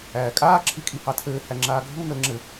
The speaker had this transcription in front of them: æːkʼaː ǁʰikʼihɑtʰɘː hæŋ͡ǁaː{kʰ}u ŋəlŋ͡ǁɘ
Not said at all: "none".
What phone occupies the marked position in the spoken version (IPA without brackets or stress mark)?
ɡʱ